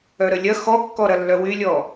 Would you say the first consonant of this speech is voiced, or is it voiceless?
voiced